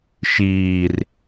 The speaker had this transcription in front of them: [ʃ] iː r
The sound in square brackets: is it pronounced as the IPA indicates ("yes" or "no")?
yes